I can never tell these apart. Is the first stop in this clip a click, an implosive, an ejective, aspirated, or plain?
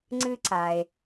click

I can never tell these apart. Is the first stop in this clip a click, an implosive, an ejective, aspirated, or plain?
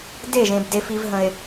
plain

